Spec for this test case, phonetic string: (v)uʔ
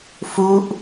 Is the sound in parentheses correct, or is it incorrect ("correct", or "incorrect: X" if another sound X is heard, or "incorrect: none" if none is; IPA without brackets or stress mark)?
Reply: incorrect: f